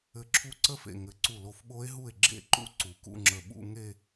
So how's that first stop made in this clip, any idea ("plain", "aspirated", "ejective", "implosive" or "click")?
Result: click